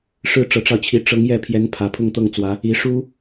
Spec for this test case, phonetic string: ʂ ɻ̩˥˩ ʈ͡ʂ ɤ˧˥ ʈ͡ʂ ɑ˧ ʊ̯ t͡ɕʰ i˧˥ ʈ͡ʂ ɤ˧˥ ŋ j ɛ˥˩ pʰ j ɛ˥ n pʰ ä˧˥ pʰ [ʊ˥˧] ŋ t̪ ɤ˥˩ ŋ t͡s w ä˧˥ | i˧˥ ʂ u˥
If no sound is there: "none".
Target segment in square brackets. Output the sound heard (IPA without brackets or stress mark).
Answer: ʊ˥˧